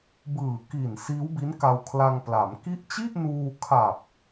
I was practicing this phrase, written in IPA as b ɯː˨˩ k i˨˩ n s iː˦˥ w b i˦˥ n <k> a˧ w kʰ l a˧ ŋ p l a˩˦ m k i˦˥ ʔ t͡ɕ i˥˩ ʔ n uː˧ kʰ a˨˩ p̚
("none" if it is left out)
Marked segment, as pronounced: k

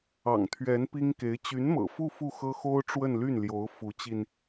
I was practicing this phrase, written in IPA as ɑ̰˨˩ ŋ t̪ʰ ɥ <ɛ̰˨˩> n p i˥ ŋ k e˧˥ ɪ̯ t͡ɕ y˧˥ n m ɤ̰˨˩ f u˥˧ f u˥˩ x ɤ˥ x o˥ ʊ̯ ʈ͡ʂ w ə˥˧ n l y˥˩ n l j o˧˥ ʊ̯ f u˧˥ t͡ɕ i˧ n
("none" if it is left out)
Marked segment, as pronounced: ɛ˧˥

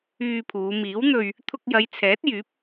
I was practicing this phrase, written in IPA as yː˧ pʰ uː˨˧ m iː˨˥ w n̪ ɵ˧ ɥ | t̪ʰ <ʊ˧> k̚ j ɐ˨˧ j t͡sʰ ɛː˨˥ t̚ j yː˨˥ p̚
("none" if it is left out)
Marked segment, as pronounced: ʊ˧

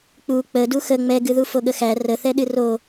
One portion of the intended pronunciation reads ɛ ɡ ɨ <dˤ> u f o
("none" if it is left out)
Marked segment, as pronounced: ð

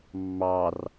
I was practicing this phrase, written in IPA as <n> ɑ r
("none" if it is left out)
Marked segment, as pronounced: mː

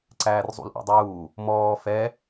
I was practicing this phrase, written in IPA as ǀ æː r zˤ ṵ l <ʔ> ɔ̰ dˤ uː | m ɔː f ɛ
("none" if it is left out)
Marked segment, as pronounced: ʔ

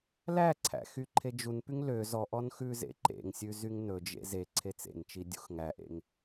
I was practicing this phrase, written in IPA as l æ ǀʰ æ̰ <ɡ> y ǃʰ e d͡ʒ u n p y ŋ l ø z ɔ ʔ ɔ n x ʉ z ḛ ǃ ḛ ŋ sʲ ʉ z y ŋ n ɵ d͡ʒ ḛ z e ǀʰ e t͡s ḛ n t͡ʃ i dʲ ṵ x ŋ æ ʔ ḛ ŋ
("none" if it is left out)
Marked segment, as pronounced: x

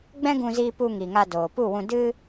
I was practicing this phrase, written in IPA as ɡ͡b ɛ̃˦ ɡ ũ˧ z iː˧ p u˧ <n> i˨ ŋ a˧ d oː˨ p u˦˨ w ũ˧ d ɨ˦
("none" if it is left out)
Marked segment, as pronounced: ŋ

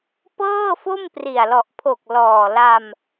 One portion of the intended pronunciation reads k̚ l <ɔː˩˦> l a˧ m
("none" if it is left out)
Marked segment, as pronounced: ɔː˨˩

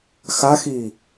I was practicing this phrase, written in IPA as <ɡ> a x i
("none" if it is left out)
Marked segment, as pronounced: x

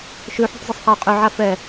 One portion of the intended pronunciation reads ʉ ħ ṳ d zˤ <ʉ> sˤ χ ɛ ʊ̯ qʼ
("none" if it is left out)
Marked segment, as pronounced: ə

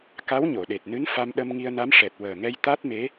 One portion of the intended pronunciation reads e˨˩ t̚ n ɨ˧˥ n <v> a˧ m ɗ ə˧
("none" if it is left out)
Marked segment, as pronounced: f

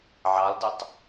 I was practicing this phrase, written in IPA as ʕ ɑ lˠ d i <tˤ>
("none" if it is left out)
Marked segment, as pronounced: tˤ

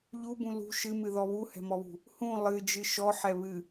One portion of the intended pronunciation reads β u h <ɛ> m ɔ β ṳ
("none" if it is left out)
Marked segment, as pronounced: ɛ̤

